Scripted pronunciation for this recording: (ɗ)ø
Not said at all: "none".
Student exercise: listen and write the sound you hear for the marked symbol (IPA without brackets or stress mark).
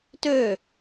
t